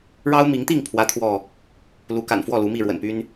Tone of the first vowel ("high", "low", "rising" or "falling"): high